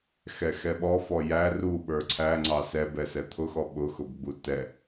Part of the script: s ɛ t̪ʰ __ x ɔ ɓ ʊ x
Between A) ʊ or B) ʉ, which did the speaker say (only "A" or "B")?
A